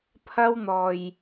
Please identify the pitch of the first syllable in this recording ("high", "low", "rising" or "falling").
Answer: high